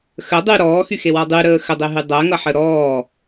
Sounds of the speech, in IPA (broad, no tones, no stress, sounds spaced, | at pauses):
x ə dˤ y ɾ ɔː x y x e w ɒ dˤ y ɾ əː x ə dˤ e ɦ y dˤ ɜ ŋ ʌ ħ ə ɾ ɔː